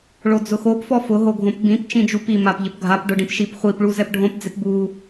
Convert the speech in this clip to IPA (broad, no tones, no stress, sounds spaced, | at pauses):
ɭ o d͡z ʊ x o p f ɔ f ʊ ɦ o ɡʱ õ p b ĩ p t͡ʃ ĩ d͡ʒ u p i m a p ʎ ɪ p ɡʱ a p ɖ ʊ ɖ ĩ p ʃ i p χʷ i p ɭ u z ɛ p ɖʱ õ p d͡z ɪ p b u